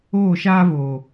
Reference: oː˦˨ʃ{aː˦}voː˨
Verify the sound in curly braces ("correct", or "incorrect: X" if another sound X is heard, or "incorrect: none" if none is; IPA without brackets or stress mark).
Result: correct